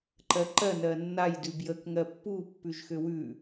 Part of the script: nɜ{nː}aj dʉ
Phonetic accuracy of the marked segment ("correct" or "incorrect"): correct